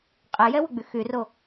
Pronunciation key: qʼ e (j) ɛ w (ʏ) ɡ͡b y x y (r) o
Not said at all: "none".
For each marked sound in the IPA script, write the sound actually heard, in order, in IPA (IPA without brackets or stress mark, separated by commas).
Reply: j, ʏ, r